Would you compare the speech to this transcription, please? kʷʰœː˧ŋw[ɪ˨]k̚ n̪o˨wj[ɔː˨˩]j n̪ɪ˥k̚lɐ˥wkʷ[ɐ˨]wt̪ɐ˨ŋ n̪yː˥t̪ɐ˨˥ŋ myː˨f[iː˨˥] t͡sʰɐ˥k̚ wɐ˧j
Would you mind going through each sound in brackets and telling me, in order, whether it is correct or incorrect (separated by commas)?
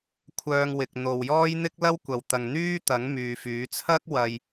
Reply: correct, incorrect, correct, incorrect